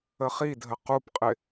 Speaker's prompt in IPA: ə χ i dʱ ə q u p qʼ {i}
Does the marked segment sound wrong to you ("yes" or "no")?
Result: yes